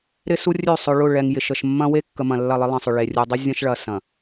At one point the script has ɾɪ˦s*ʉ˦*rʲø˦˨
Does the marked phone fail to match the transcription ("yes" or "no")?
yes